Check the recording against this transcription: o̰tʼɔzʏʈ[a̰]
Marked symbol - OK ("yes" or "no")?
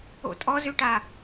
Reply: no